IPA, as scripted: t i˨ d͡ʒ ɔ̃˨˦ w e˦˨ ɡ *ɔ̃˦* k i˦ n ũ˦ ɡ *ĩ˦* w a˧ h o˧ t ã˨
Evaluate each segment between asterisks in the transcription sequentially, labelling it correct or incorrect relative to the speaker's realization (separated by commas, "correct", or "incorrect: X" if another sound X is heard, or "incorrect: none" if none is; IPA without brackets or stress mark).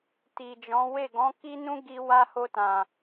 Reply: incorrect: ɔ̃˨˦, incorrect: i˦